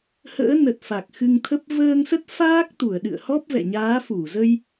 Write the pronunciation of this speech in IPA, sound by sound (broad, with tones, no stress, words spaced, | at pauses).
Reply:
hə̰ː˧˥ nə˨˩t̚ fa˨˩k̚xɨ˧ŋt̪ʰə˦˥p̚ vəː˧ŋsə˦˥t̚faː˦˥k̚t̪u˧˩ə̯ ɗɨ̰˧˨ə̯hɔ˦˥p̚vɛ̰˧˨ ɲaː˨˦fu˧˩zə˧j